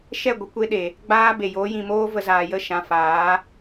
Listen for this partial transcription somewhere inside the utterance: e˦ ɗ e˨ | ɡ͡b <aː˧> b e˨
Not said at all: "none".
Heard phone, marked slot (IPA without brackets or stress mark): aː˦